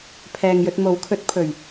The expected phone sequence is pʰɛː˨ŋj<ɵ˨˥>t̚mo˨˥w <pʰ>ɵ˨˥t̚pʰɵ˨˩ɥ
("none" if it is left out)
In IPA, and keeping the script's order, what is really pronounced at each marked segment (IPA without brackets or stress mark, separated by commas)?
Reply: ɵ˧, kʰ